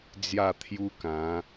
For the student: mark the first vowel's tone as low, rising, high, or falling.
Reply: falling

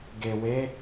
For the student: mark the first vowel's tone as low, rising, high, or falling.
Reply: low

